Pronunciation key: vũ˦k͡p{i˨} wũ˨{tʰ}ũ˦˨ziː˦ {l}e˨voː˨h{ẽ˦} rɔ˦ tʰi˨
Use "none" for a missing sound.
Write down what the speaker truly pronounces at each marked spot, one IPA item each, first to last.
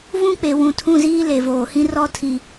e˨, tʰ, l, ĩ˦

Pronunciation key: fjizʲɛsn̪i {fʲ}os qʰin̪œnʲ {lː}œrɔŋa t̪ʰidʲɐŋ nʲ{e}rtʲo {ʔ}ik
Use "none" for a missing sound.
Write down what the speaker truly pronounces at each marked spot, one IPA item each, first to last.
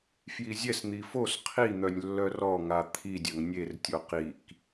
f, lː, e, q

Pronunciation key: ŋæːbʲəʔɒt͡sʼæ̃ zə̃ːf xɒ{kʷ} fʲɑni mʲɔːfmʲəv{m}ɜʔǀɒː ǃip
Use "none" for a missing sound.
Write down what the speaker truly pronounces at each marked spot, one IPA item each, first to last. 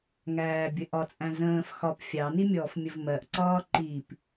p, m

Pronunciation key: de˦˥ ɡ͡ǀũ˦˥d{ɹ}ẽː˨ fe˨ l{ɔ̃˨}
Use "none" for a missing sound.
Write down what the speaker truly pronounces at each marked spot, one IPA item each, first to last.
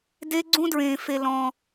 ɹ, ɔ̃˨

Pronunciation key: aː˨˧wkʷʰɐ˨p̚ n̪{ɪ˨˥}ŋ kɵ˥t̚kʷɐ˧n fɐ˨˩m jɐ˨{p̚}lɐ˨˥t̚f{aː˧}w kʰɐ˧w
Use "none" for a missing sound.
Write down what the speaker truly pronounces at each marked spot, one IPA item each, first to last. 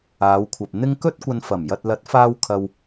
ɪ˧, t̚, aː˧

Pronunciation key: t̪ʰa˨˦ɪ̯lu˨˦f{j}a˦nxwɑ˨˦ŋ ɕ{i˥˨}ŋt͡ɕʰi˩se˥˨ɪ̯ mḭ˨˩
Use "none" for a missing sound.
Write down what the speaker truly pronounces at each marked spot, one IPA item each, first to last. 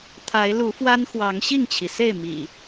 w, i˥˨

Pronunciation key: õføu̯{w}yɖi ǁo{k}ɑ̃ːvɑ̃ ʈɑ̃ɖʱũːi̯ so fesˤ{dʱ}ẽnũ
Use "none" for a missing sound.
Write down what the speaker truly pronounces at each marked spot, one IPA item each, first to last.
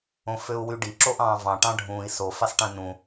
w, ʔ, ʈ

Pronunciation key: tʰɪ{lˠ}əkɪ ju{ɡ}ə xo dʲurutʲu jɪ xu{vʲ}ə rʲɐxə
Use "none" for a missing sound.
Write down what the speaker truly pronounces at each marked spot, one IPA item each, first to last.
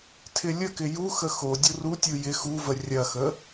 lʲ, x, v

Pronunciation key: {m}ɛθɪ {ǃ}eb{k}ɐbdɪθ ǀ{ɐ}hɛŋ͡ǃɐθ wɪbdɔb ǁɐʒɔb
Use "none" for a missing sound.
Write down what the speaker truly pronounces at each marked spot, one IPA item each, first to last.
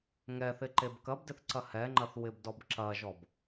ŋ, ǃ, k, ɐ

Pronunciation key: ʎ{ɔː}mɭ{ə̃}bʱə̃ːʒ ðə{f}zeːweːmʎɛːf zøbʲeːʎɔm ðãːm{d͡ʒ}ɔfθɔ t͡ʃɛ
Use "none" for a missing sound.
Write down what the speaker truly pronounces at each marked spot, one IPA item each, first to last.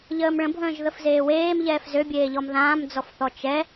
əː, ə̃, f, d͡z

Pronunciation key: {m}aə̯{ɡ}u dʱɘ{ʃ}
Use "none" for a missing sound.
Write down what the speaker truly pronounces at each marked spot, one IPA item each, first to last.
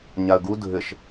ɲ, ɡ, ʃ

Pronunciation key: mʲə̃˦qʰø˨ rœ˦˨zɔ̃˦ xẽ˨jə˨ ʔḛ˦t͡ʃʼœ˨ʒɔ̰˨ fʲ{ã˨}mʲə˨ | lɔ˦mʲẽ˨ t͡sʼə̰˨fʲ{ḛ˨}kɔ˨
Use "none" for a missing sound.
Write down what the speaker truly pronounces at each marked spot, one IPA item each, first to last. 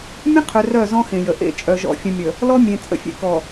ə̃˨, ḛ˨

